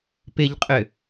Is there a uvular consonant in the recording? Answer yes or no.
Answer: yes